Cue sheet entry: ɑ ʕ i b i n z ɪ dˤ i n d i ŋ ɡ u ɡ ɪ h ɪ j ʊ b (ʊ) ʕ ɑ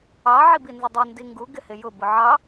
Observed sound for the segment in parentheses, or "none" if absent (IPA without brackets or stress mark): ʊ